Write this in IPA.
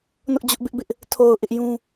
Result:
n ʊ˦ ʔ d͡ʑ ʊ˦ ʔ b ɪ˦ ʔ b ɪ˦ ʔ | tʰ o˨ ʊ̯ ʔ ɪ˦ ʔ j ũ˦

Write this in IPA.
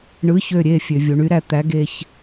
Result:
ɳ ɯ˨˥ ç ø˩˧˩ ɾʲ e˩˧˩ fʲ ø˩ vʲ u˩ ɳ y˨˥ ɾ æ˩ t̪ æ˨˥ ɡ e˩˧˩ ç

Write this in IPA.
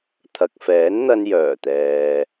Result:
t̪ʰ ɐ˨ k̚ f ɛː˨˥ n n̪ ɐ˧ n j œː˨˩ t̪ ɛː˨

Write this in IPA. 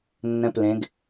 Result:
nː ɛ̃ p l ẽ ɡ

